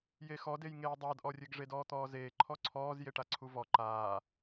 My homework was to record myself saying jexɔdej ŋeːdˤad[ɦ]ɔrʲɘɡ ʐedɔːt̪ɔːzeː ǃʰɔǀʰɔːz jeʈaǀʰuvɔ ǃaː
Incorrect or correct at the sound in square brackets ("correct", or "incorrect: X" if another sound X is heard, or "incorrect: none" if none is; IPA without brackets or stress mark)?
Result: incorrect: ʔ